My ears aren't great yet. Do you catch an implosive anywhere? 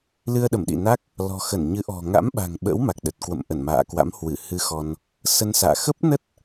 yes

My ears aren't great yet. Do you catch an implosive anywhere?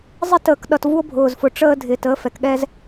yes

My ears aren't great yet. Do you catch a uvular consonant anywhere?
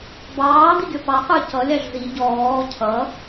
yes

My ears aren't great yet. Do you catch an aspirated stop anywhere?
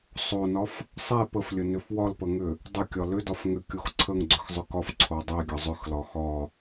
yes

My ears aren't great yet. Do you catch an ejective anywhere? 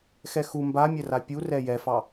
no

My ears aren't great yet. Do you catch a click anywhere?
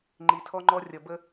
yes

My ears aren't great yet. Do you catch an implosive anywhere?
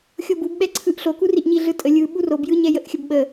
yes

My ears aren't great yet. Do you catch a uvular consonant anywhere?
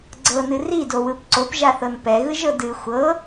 no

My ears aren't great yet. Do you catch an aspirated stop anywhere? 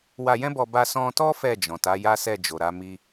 no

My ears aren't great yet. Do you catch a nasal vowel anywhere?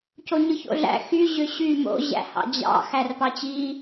no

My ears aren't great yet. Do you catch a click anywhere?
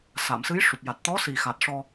no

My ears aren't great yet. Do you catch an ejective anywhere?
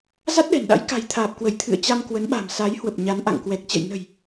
no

